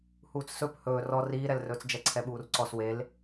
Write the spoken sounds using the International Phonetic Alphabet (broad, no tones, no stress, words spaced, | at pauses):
huːt͡ssɵp hɵː rɔ riːɾɛlrɵːt͡s d͡ʒɛǀʰɛɓuːrǀɔs wel